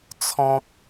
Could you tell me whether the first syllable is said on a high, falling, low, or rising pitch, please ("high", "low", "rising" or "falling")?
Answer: high